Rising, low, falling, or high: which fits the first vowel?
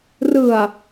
low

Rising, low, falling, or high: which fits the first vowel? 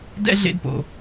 high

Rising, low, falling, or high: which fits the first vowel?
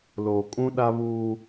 low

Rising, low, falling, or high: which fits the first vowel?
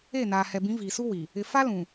falling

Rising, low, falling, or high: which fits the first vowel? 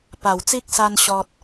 low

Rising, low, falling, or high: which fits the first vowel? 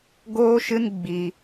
high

